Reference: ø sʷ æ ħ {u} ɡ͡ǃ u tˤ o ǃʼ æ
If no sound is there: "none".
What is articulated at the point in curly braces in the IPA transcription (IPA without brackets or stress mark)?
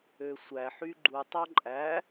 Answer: y